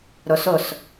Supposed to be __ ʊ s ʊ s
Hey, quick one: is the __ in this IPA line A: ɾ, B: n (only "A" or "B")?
A